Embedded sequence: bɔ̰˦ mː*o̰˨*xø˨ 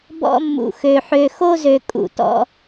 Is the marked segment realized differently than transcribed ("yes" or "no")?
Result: yes